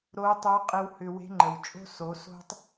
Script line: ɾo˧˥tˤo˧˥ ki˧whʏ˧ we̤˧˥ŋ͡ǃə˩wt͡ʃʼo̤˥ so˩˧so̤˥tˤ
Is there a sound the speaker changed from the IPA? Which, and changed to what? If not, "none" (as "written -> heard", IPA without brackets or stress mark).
k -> qʼ